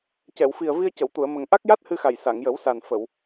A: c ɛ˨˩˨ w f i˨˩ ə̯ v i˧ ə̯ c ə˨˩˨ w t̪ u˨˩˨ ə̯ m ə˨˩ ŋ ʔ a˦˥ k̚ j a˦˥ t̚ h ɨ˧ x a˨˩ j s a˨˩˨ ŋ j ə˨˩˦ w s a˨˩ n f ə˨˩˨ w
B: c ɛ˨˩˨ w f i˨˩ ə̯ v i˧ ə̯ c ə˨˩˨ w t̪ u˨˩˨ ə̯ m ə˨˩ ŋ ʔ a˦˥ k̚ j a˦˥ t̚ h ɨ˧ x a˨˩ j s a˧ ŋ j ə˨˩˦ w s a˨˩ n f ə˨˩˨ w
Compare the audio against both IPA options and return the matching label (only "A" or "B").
A